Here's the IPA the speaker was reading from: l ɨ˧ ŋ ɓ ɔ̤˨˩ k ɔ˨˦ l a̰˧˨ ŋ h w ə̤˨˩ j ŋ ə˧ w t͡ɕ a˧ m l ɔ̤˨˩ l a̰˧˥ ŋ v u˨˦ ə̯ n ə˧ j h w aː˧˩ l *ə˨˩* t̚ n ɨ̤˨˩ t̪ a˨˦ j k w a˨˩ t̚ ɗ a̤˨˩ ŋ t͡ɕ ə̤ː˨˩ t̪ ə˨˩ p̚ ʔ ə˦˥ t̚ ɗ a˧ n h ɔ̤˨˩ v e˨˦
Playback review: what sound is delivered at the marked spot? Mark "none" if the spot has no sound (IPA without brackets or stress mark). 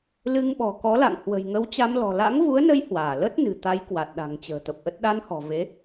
ə˦˥